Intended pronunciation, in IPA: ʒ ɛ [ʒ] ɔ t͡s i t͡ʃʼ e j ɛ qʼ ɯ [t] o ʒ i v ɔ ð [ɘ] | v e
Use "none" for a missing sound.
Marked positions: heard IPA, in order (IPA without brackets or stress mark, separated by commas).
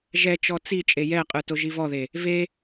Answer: t͡ʃ, t, e